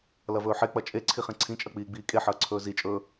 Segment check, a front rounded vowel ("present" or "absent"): absent